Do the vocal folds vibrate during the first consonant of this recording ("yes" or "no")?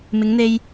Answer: yes